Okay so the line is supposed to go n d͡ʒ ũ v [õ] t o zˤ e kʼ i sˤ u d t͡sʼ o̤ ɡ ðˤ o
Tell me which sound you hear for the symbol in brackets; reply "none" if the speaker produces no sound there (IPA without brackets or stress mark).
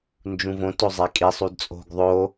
õ